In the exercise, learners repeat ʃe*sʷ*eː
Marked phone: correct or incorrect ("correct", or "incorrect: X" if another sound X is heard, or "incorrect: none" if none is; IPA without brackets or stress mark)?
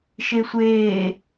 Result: correct